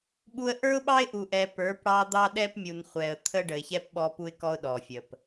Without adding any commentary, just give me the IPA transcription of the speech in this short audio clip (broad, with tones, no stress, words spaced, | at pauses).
ɓu˦ə̯ ʔə˞˦ʊ̯ɓɑ˦ɪ̯ʔu˨ʔɛ˨ pə˞˨˦pɽɑ˦ d̪ɑ˦ɗɛ˦pmʲu˨nχʷɛ˨ə̯ t̪ʰə˦ɖə˨ɪ̯çɛ˦p ɓɔ˦pu˦ɪ̯kɔ˦ʊ̯ ɗɔ˨fʲə˨p